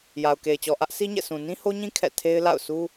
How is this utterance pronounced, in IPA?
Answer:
j a˨ ʊ̯ k e˨ ɪ̯ t͡ɕ ɔ˨ ʔ ä˦ ʔ s i˦ ɲ ɛ̰˦˨ s ũ˨ n ĩ˦ h o˦ ɲ ĩ˦ kʰ ɛ̰˦˨ tʰ e˦ ɪ̯ l a̰˦˨ ʊ̯ s u˦

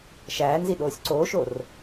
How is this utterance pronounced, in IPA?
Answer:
ʃ æː n z i ɗ oː sʲ ǀ oː ʃ o r

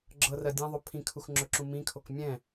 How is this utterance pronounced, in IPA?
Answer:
ɡ͡ǁ ɤ r ɜ dʲ ɛ̃ ðˤ ɵ pʰ ĩ kʰ u x ŋ͡ǁ ɵ ǁ ũ m ĩ kʰ o k mʲ ɛ̃

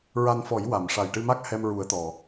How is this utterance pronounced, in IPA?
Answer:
ɹ a˧ n f ɔ˨˩˦ j w a˨˩˨ m ʂ a˨˩ j ʈ ɨ˧ m a˦˥ k̚ h ɛ˧ m ɹ u˨˩˦ ə̯ t̪ ɔ˨˩˨

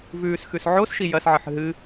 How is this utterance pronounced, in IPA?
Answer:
v ʉː s x ʉ s ʕ o s ʃ i j ɐ s ʕ ɨ ħ ɦ ɨ

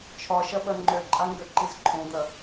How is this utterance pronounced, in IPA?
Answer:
t͡ʃʰ ɒ ʃ ɐ ɓ ɐ ŋ͡ǃ ø ǃʼ a ŋ ɡ ø ǃ i z ǃʰ õ d̪ ɐ

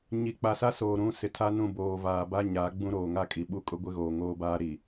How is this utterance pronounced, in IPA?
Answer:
ɲ i˨ k͡p a˨ s a˦ s oː˨ ɾ ũ˦˨ s ɪ˨ tʰ a˦ n ũ˦˨ b oː˨ v aː˨ b a˦ ɲ a˨˦ ɡ͡b ũ˦ ɾ oː˨ ŋ a˦ kʼ i˨ ɓ u˦ kʼ ʊ˦ ɡʷ ɪ˦ ɣ oː˨ ŋ oː˦ b aː˦ ɾ i˨

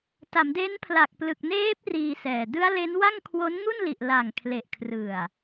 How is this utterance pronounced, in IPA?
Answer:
t a˩˦ m d e˦˥ n pʰ l a˨˩ k̚ p l ɯ˨˩ k̚ n eː˦˥ p̚ r iː˧ s ɛː˨˩ d ɯ˦˥ a̯ l e˦˥ n w a˥˩ ŋ kʰ w o˦˥ n ŋ u˥˩ n l i˨˩ ʔ l a˨˩ ŋ kʰ l e˨˩ ʔ kʰ r ɯ˨˩ a̯

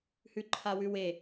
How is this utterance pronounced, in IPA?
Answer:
h ʉ ǃʰ a w ʉ w e

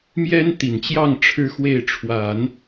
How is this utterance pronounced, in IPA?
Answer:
m j ɛ˥ n t̪ i˨˩ n t͡ɕ j ɑ˥˩ ŋ ʈ͡ʂʰ ɻ̩˥ x w e˥˩ ɪ̯ ʈ͡ʂʰ w a˨˩˦ n

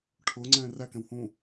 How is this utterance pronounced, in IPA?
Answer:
ʈʰ ʊː ŋ͡ǀ ɛ̃ː r æ k ɛ̃ w h ũː

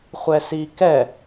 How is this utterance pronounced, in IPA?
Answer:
χʷ ɛ s i k ɛ

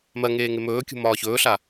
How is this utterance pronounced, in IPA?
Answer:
m ɜ ŋ eː ŋ e m ɵː kʲ ṳ m ɒː ç ɵː ɬ a

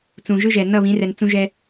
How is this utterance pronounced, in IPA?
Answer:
t͡s ũ˨ ʒ ɯ˦ ʒ ɛ˨ n ʌ˦˨ β ĩ˨˦ r ɛ˨ n t͡s ũ˦ ʒ ɛ˦

